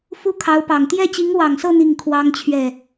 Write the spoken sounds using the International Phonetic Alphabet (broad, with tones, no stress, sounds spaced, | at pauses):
f u˥ kʰ ɑ˧˥ ʊ̯ p ɑ˨˩ ŋ t̪ j ɛ˥˩ t͡ɕ i˧˥ ŋ w ɑ˨˩ ŋ s ɤ˥˧ n̪ i˥˩ ŋ kʰ w ɑ˥ ŋ t͡ɕʰ ɥ ɛ˥˩